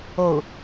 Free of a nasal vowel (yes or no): yes